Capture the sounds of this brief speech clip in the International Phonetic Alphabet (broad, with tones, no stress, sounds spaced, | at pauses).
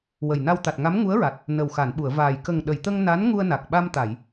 w ə˨˩ j n a˧ w t̪ a˨˩ t̚ ŋ a˧˥ m ŋ u˧˥ ə̯ ɹ a˨˩ t̚ | n ə˨˩ w x a˨˩˨ n ɓ u˨˩˨ ə̯ v aː˨˩ j k ə˨˩ ŋ ɗ ə˨˩˨ j t̪ ə˧ ŋ n a˧˥ n ŋ u˧ ə̯ n a˨˩ k̚ ɓ a˧ m t̪ a˨˩˨ j